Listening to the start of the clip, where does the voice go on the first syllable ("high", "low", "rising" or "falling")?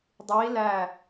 rising